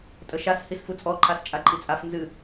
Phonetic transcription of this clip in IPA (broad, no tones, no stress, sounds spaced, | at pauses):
tʼ ə ʃ a s h i s f u t͡sʼ ɔ ǃʰ a s t͡ʃʼ a ǃʼ i t͡sʼ a f n z ɨ